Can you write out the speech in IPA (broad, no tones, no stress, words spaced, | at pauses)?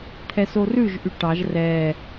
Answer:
t̪ʰɛsorʉʒ ʔyʈɑʒ rɛ